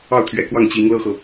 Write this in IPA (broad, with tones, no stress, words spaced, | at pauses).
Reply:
ɑ˥˩ʊ̯t̪ʰɥɛ̰˨˩kwɑ˥˩ŋ t͡ɕi˧˥ŋ lɤ˥xɤ˨